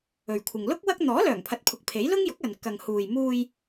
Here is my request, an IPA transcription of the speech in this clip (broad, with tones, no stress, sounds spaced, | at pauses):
ɵ˨ ɥ kʷʰ ɪ˨ ŋ l ʊ˥ k̚ w ɐ˥ k̚ n̪ ɔː˨˥ l œː˨˩ ŋ pʰ ɐ˨˥ t̚ pʰ ʊ˨˥ k̚ pʰ e˨˥ j l ʊ˥ ŋ j ʊ˨˥ k̚ ɐ˨ n k ɐ˨ ŋ h uː˨ j m uː˧ j